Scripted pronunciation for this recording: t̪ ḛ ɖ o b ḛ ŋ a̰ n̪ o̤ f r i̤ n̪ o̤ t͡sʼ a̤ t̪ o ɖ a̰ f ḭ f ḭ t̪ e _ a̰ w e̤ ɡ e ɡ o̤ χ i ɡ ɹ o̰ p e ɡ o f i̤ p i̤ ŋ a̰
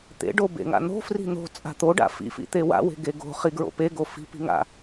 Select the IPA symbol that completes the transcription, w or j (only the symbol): w